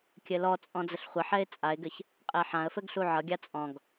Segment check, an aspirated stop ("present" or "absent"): absent